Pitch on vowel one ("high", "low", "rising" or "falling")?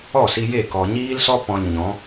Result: falling